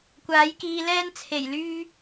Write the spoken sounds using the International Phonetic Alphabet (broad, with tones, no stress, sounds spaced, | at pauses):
kʷ aː˨˥ j k iː˧ l ɛː˥ n t͡sʰ e˨˩ j l yː˧